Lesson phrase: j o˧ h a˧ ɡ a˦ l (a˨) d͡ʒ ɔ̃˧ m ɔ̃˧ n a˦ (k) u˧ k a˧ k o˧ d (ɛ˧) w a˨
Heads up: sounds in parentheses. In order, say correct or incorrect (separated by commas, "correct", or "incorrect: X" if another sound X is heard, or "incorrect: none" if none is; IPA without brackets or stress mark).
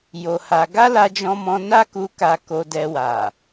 incorrect: a˧, correct, correct